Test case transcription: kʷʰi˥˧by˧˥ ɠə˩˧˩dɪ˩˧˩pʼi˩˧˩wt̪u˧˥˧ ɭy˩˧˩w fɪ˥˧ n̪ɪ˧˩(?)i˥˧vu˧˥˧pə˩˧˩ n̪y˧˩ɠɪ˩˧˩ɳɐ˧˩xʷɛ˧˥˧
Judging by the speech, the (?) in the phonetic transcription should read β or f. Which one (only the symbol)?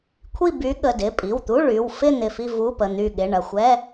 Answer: f